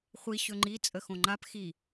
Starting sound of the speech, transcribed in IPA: χʷ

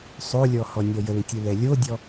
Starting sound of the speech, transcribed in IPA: sˤ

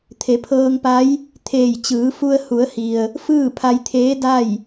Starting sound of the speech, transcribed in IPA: t̪ʰ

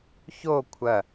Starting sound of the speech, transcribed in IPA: ç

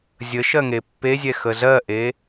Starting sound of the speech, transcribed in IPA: zʲ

